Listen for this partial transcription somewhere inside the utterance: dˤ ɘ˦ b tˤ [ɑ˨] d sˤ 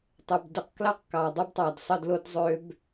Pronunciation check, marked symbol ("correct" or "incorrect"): correct